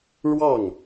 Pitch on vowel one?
falling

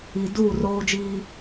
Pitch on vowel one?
low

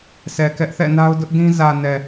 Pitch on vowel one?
low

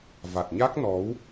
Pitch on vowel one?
low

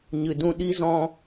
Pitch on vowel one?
low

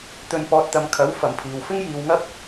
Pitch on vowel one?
low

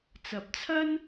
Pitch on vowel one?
low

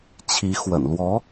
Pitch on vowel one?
rising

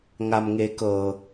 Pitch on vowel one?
low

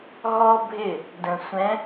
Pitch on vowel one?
high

